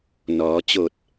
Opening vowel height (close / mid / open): mid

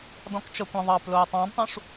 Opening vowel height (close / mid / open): mid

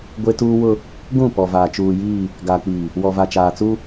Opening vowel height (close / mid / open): mid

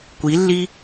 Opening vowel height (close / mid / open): close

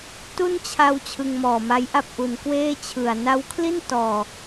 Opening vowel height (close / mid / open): close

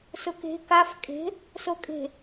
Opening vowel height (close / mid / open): close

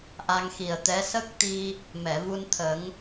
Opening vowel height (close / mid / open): open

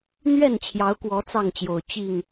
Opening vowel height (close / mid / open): mid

